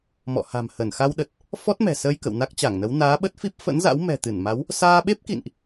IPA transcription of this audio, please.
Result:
m ɔ̰˧˨ h a̤˨˩ m h ə˧˩ n x a˧ w ɗ ə˨˩ t̚ | f ɔ˦˥ t̚ m ɛ̤˨˩ s əː˧ j k ə̰˧˨ w n a˦˥ k̚ t͡ɕ a˧˩ ŋ n ə˨˦ w n aː˨˦ ɓ ə˦˥ t̚ f i˦˥ p̚ f ə̰˧˥ n z a̰˧˥ w m ɛ̤˨˩ t̪ ɨ˧˩ n m a˨˦ w | s aː˧ ɓ e˦˥ p̚ k ḭ˧˨ n ʔ

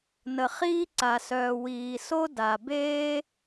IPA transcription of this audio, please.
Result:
n ə˩ χ iː˥ ǀ a˩ s œː˩ w iː˩ s o˥ d a˩ b eː˥

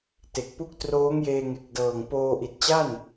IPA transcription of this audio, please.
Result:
t e˨˩ k̚ p u˥˩ k̚ t r oː˦˥ ŋ j eː˧ ŋ e˨˩ k̚ d ɤː˨˩ ŋ p oː˧ ʔ i˨˩ t̚ t͡ɕ a˥˩ n

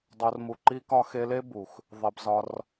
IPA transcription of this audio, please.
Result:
dˤ o˧ r m u˧ ǃ i˦ k ɒ˦ x e˧ l e˦ b u˨ x | ðˤ e˧ b z ɒ˧ r

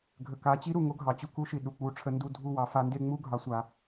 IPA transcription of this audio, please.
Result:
ɡʱ ə˨ k a˨˦ t͡ɕ i˦ ɾ u˨ ŋ o˦ ɡʱ ɑ˨ t͡ɕ u˦ k u˦ ʃ i˨ ɗ u˨ k͡p u˦ ʈ͡ʂʰ ə˦ n d u˦ dʱ u˦ w ɑ˨ f a˦ n d e˦ ŋ͡m u˦ ɡʱ ɑ˦ sʷ a˦

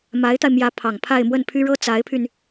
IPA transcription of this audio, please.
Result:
m a˧˥ ɪ̯ t̪ a˧ ɪ̯ m j ä˧˥ pʰ ɑ˨˩ ŋ pʰ a˥˧ ɪ̯ m w ə˥˩ n pʰ y˥ ɻ ɤ˥ t͡s a˧˥ ɪ̯ pʰ y˧ n

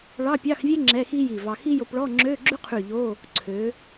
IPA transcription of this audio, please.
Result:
ɭ ɑ˧˥˧ pʲ ɑ˧˥˧ x vʲ ɛ˥ ŋ͡ǁ ɛ˧˥˧ x i˥ j i˧˩ v ɑ˧ x i˥ j o˧ p ɭ ɔ˧˥˧ ŋ͡ǁ øː˧˥˧ ɡ͡ǁ ʉ˥ qʰ ʉ˧˩ ʎ o˧˥˧ | ǀʰ ø˩˧

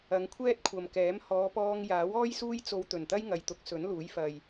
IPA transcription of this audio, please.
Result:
ɐ˨˧ ŋ kʷʰ ɛː˥ t̚ kʷʰ ɐ˨ m k ɛː˨˥ m h ɔː˨˧ p ɔː˧ ŋ j aː˨˥ w ɔː˥ j s uː˥ j t͡s o˧ w t̪ ɵ˨˩ n t̪ ɐ˥ j ŋ ɐ˨ j t̪ ʊ˨˥ k̚ s ɵ˨˥ n l uː˨˥ j f ɐ˨ j

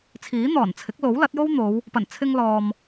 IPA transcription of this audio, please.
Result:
t͡sʰ iː˨˥ n̪ ɔː˨˩ n t͡sʰ ɪ˨˥ k̚ l o˨˥ w l ɐ˨˥ t̚ j o˥ w n̪ o˨˧ w | p ɐ˨˩ n t͡sʰ ɪ˧ ŋ l ɔː˨ m

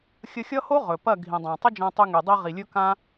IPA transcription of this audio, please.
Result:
xʲ ə˧ xʲ ʌ˦ h o˦ ʁ ɵ˨ p ɐ˦˨ ɡʱ ĩ˨ dˤ ã˨ tˤ ə˦ d͡ʒ ã˧ tˤ y˧ ŋ y˨ dˤ i˧ ʁ i˨ lʲ ɵ˦ k ã˦

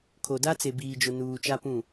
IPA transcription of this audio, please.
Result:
kʰ o˨ d a˦ t͡s e˨ b iː˨ d͡ʒ ʊ˨ n uː˨ t͡ʃ a˦ p ũ˦˨

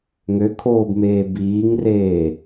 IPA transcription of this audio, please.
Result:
ŋ ø kʰ oː b m eː b iː ŋ r eː

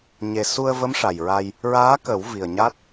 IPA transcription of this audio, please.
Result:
ɲ e˨˩ s u˧ ə̯ v ə˧˥ m ʂ a˨˩ j ɹ a˧ j | ɹ aː˧˥ k ə˨˩˦ w v i˨˩ ə̯ ɲ a˦˥ t̚

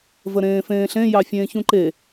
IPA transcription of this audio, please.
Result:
v ə ɾ ẽː f ẽː ɬ ẽ j ɑ fʲ ẽː ç ũ ǃ e

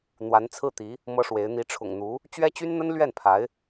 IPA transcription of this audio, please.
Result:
n̪ w a˧˥ n t͡sʰ ɹ̩˥˩ t̪ i˧˥ | m ɤ˥ ʂ w e˧˥ ɪ̯ n̪ i˧˥ ʈ͡ʂʰ ʊ̰˨˩ ŋ n̪ u˧˥ | t͡ɕ ɥ ɛ˥ t͡ɕ y˥ n n̪ ə˥ n l ɥ ɛ˥˩ n pʰ a˧˥ ɪ̯

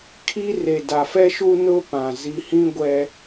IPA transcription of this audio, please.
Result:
kʰ i˦ r e˨ d a˨ f ɛ˦ ʃ u˦ n ʊ˦ p ã˨ z i˨ h ĩ˦ ɡʷ ɛ˦

